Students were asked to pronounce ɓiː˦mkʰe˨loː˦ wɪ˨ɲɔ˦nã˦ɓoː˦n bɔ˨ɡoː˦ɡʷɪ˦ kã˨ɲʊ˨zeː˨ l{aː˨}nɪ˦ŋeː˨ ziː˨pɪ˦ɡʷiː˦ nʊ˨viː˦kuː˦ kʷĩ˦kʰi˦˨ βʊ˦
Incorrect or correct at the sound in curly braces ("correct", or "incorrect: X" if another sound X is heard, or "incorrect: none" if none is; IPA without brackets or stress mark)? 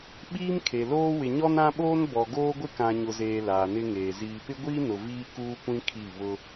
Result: correct